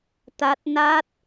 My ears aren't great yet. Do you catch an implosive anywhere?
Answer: no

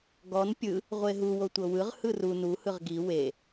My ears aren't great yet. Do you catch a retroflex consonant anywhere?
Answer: no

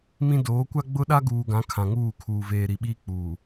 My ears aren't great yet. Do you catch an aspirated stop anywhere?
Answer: yes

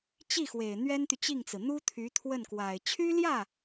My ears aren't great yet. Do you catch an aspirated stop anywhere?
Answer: yes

